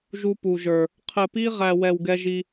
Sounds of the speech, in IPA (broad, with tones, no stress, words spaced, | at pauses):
ʒu˥pu˦ʒə˞˦ | qʰɘ˦pi˥ʁæ˦wɛ˦w ɡɛ˥ʒi˥